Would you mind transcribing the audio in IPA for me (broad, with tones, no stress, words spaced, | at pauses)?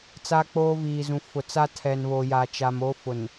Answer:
t͡saː˦k͡poː˦viː˨zũ˨ fʊ˨t͡sa˦ tʰɛ˨nβoː˨jaː˨ t͡ʃa˨mo˦ fʊ˨n